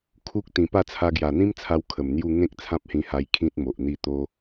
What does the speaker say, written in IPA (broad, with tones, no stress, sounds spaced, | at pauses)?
kʰ u˦ k̚ t̪ ĩ˨˩ p a˥˧ t͡sʰ a˧ ɡ j a˨˩ n̪ ĩ˦ m t͡sʰ a˧ w kʰ ə˨˩ m n̪ j u˥˧ ŋ ẽ˦ k̚ t͡sʰ ã˦ p̚ h ĩ˧ h a˧ j kʰ ĩ˦ t̚ m o˨ ʔ n̪ i˥˧ t̪ o˦